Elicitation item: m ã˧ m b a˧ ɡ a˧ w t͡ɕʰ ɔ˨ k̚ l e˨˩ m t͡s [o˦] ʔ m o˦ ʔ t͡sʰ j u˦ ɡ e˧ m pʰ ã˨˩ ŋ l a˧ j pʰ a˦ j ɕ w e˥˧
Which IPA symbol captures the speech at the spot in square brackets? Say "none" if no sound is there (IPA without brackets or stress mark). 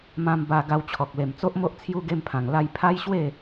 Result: o˦